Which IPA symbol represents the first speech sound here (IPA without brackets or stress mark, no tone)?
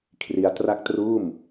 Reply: kʰ